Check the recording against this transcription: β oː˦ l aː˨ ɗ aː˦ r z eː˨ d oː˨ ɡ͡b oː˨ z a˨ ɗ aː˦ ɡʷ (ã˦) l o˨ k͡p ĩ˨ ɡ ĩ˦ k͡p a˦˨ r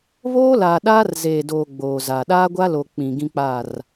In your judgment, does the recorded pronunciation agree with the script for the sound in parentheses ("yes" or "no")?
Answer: no